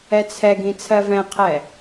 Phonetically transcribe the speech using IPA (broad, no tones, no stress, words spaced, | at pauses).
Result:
ɛt͡sʰɛɡĩ t͡sʰɜvɛ̃qʰɛ